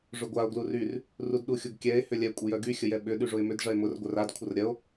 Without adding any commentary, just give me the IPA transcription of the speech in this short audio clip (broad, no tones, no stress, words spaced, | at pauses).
ʐʊɡʷao̯ ɡluryr | rudɗuxʲʊɡkʲɛe̯ hʏlʲɛ kʷʼəjœɡy xʲəjɛɓʏ ɗyʐʊe̯mʏd ʐɐe̯mʊr ɡʷœrad kʷʰərɾʲɐo̯